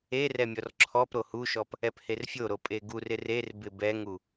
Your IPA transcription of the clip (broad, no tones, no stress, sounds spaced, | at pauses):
e r ɛ mʲ ɔ r ǁʰ ɔ p ɾ o h u ʃ ɔ p | ɛ p h e r fʲ o ɾ o pʼ e ɡ u r ɪ r e r b ɪ b ɛ ŋ u